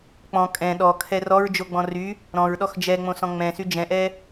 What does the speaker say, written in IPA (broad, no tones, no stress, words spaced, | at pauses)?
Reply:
k͡pɔ̃ kʼɛ̃ ɗɔkʰɛ rɔɹd͡ʒoɡ͡bɔ̃ ry | ɾɔ̃ɹɗɔx d͡ʒɛŋ͡mõsɔ̃ ŋ͡mɛ̃sy d͡ʒɛ̃ʔɛ